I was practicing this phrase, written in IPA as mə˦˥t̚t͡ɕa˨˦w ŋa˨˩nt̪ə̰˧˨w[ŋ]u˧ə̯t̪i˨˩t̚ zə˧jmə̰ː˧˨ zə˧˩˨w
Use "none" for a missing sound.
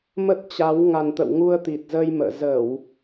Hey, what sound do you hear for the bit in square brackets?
ŋ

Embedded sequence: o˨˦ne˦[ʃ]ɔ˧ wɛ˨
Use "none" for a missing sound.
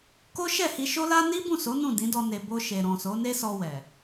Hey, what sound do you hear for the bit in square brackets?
s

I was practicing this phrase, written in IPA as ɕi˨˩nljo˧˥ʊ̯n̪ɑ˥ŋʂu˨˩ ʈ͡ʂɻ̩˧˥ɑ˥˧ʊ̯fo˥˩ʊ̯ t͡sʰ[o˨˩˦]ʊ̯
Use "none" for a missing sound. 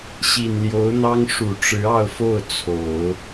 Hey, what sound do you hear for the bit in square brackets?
o˨˩˦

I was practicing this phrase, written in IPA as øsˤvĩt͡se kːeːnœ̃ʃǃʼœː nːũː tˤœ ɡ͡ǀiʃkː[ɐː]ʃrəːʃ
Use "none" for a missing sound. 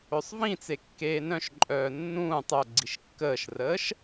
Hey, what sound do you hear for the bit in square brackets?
əː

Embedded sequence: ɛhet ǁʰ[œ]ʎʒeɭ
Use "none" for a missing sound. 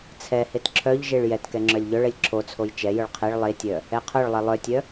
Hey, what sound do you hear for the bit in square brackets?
œ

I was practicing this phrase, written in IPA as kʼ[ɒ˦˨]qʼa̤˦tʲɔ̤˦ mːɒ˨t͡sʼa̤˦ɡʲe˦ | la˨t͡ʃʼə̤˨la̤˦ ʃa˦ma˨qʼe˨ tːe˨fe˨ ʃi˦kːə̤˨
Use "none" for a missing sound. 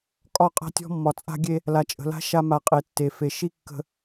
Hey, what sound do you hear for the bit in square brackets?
ɒ˦˨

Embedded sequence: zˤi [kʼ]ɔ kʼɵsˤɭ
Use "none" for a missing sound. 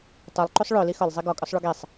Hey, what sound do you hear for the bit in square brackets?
ɡ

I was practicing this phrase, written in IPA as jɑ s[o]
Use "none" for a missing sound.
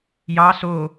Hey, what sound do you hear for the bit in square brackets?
o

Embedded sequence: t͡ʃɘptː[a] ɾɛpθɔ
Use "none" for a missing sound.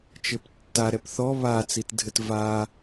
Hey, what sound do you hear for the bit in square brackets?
a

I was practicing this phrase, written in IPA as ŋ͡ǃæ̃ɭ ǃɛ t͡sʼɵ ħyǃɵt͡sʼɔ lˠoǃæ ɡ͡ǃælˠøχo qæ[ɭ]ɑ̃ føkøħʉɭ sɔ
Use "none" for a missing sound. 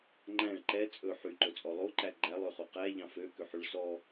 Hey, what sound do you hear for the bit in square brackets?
ʎ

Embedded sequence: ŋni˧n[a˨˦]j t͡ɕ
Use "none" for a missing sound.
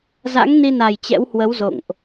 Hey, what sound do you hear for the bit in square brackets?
a˨˩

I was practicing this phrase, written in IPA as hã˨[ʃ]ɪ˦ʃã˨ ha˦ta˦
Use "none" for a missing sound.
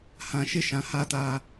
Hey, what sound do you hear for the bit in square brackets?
ʃ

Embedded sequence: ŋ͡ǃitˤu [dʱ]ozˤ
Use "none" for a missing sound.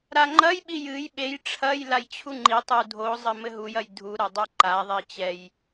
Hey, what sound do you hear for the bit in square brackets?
dʱ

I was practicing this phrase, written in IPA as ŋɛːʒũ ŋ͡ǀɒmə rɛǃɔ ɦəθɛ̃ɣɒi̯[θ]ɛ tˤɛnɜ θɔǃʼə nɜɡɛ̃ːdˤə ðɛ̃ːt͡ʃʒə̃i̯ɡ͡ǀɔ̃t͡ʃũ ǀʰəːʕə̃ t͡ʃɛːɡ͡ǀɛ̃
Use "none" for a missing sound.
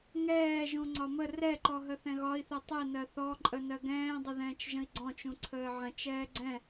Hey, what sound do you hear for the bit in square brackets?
θ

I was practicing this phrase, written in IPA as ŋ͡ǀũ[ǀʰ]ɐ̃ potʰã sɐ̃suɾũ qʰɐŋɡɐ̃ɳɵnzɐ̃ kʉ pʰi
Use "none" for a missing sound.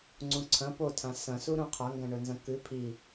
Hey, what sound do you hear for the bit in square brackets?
ǀʰ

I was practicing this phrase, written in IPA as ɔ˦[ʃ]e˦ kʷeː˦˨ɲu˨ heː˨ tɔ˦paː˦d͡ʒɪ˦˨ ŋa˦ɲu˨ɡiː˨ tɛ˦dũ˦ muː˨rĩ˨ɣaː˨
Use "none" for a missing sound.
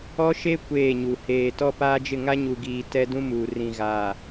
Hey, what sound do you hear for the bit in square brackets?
ʃ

